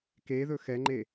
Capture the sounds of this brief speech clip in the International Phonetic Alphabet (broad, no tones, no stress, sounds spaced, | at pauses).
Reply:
k e ð ɵ x ɛ ŋ͡ǃ e